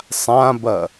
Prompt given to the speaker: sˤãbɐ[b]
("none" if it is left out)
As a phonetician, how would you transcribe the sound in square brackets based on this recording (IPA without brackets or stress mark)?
none